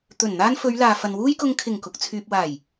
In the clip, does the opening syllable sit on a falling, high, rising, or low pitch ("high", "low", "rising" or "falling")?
low